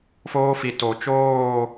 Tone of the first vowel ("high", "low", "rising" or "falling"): high